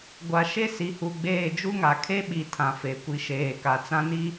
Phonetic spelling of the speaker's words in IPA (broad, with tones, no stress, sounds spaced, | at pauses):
ɡʷ a˨ ʃ e˦ s i˨ h u˨ ɡ͡b eː˦˨ d͡ʒ u˦ ŋ a˨ kʰ e˦ ɓ i˨ tʰ ã˨ f e˨˦ kʷ i˨ ʃ eː˨ k a˨ t͡s ã˦ n i˦